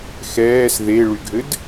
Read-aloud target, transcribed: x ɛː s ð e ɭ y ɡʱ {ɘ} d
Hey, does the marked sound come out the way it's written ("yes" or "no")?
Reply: yes